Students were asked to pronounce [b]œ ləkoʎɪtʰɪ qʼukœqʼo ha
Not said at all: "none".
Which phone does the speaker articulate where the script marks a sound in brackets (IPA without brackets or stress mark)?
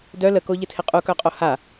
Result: d